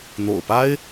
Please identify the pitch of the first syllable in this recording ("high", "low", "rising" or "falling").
low